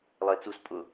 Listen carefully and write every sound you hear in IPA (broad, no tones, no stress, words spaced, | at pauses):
lˠəe̯t͡sus pʼʊ